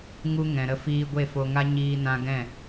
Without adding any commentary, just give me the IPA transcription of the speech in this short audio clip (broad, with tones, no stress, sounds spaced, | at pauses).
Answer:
ŋ u˧ ŋ ɛ̃˨ ɾ ə˧ f iː˧ ɡʷ e˦˨ f o˧ ŋ a˦ ɲ iː˧ n ã˧ ɡ ɛ̃˦˨